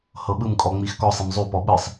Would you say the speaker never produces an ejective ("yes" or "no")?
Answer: no